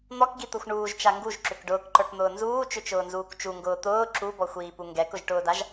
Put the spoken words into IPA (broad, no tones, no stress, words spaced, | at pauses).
n̪ɔkɡit̪ʌxʷ ɳuːʒt͡ʃa ŋɡuʒǁʏk ɖʊːkǃə˞kn̪ʊː nzuːt͡ʃʏt͡ʃʊːnzuːk t͡ʃuŋɡʊː t̪ʊː ǁubɔxʷiːpu ŋɡɛkʊʒʈʊːdaʒ